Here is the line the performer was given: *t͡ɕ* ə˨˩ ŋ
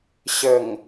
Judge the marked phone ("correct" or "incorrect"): incorrect